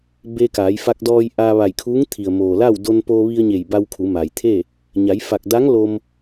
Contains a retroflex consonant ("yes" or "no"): no